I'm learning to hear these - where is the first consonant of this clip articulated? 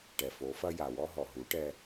retroflex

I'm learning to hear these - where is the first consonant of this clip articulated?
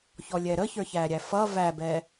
palate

